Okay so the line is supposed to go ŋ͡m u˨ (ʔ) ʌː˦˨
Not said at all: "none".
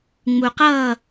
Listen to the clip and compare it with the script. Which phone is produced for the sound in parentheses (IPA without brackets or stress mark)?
q